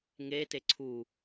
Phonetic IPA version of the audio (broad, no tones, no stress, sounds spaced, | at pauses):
ŋ e t e ǀʰ u